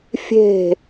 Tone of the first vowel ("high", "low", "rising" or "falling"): falling